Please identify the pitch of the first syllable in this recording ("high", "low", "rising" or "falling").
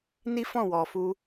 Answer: high